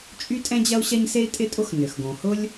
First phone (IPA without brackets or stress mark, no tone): t͡ʃʼ